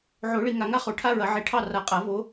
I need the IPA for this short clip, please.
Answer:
ʕ o˨˩˦ ɭ i˨ ŋ a˨ ŋ a˥ χ o˨˩˦ ʈʰ a˥ ɹ ɐ˨˩˦ ʕ i˨˩˦ ʈʰ ɑ˥˧ r a˨˩˦ qʼ a˨˩˦ v o˨˦

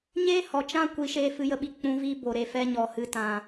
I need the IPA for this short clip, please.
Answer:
ɲ e˦ h ɔ˨ t͡ʃ ã˦ kʷ i˨˦ ʃ eː˧ f ɨ˧ j ə˧ ɓ i˧ k͡p ũ˨˦ v i˧ b o˨ ɾ e˨ f ɛ˧ ɲ ɔ˨ h ɨ˧ t ã˨

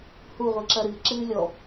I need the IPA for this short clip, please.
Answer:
h u ʁʷ ɨ ǁ ɐ ɾ ɨ ǁ ɨː lʲ ɔ

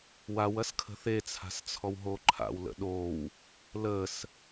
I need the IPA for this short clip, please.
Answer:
w a w ɐ s kʰ ə̤ θ e t͡sʰ a̤ s t͡sʰ ɔ w ɦ o ǃʰ a̰ w l ə̰ ɗ o w | l ə s

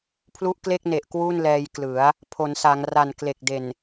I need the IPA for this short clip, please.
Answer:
pʰ l u˦˥ ʔ k l e˥˩ k̚ n e˨˩ ʔ k w u˥˩ n l ɛː˧ j k l ɯ˩˦ a̯ | pʰ o˩˦ n s a˩˦ ŋ r a˨˩ n k l e˨˩ k̚ d e˨˩ n

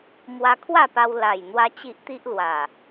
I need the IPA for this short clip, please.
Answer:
m w a˧ kʰ w a˥˧ p a˧ w l a˨˩ j n̪ w a˦ t͡ɕ i˦ ʔ t̪ i˦ ʔ l w a˨˩

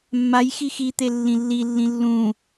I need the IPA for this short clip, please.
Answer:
mː a j x i x i t̪ e lː ĩ lː i lː ĩ lː ũ

